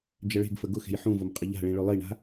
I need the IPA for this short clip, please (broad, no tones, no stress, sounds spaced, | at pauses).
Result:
d͡ʒ ə ɭ e̤ ɡ f ə ɡ ʊ x e̤ j ħ ũ v ʊ m qʼ ə ʎ a̤ ɭ ĩ ɭ ɵ lˠ i ɳ a̤